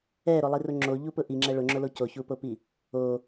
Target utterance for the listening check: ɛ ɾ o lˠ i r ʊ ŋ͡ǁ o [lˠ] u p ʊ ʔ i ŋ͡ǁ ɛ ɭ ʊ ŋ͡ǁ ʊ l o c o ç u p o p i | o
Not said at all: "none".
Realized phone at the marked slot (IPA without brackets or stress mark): ʎ